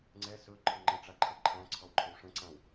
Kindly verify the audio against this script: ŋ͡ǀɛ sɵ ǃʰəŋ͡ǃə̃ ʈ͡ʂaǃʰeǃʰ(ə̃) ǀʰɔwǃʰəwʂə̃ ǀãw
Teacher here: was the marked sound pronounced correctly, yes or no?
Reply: no